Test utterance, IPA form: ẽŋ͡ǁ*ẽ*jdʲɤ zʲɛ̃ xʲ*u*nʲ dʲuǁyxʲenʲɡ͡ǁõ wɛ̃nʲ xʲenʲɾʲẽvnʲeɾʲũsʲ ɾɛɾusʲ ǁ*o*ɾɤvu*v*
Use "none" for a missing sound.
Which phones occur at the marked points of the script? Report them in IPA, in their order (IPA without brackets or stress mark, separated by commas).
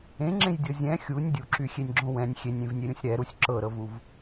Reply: ẽ, u, ɤ, v